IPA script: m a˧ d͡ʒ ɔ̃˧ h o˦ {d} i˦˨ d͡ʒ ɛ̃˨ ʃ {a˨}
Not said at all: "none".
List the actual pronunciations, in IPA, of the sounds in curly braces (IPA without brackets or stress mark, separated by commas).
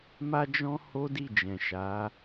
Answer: d, a˨˦